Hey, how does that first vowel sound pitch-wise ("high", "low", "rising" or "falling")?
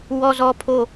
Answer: high